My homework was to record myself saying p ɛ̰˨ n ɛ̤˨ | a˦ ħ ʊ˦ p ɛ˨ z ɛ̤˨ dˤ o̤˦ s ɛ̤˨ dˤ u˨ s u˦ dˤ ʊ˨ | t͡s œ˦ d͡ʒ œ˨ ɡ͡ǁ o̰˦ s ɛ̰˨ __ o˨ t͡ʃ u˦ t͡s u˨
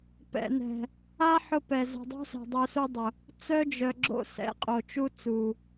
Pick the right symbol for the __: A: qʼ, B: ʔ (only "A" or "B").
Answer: A